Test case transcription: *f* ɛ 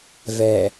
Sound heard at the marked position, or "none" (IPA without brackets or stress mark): v